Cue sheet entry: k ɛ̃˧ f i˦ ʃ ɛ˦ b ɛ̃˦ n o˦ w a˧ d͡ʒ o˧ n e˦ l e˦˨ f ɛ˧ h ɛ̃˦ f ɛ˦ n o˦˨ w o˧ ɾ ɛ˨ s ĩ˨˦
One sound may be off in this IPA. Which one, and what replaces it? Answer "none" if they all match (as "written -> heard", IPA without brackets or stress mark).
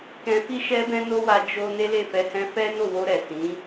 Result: none